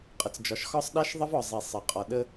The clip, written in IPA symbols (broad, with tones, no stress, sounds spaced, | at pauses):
qʼ ə˨ t͡s d͡ʒ ɒ˨ ʃ x ɒ˦ sˤ ɗ a˦ ʃ ðˤ ə˦ v ɒ˨ zˤ i˨ sˤ ə˨ qʼ ɒ˨ ɗ ə˦